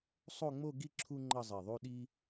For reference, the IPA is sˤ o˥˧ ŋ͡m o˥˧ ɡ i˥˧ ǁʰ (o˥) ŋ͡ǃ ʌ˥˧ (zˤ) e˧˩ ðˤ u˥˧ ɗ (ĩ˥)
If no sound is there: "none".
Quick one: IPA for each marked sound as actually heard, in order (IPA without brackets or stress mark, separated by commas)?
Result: u˥, zˤ, i˥